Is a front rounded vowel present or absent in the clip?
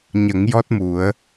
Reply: absent